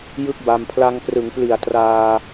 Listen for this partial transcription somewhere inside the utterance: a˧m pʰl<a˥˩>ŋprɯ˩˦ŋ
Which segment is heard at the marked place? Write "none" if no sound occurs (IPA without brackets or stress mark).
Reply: a˧